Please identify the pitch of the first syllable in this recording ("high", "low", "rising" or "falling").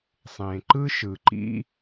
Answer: low